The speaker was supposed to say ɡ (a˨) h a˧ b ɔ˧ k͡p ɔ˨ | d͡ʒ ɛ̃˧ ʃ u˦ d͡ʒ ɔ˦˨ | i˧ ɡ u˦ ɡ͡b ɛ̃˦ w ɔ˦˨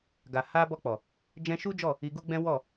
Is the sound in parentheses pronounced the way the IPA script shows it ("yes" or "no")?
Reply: yes